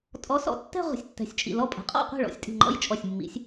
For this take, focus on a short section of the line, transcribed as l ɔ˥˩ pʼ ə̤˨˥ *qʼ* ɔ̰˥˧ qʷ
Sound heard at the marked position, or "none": qʼ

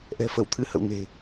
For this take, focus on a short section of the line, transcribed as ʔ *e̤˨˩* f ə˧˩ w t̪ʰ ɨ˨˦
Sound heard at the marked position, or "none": ɛ̤˨˩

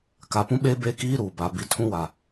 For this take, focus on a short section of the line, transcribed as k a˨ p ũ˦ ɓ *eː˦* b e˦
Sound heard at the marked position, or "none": eː˦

